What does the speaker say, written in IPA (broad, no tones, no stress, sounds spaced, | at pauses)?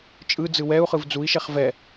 t͡ʃʼ ɯ d͡z ɯ w ɛ u̯ χ ɯ v d͡z u i̯ ʃ ɛ χ v ɛ